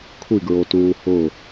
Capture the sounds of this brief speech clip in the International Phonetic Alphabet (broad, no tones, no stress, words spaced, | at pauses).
kʷʰiɡɹotuː hʊ